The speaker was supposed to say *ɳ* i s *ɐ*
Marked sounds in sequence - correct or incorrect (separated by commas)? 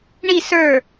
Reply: correct, incorrect